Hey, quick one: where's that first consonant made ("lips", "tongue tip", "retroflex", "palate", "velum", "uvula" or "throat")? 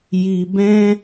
palate